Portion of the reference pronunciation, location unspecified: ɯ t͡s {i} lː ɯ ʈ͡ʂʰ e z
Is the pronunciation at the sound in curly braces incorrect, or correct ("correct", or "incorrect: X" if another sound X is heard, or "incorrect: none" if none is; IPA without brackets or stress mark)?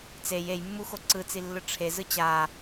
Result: correct